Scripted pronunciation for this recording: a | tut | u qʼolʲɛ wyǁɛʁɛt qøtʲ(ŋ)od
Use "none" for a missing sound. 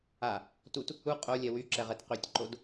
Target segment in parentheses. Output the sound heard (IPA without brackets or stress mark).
ǃ